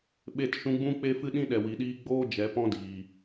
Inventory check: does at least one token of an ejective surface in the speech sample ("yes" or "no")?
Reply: no